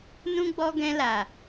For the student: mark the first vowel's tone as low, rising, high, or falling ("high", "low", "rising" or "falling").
high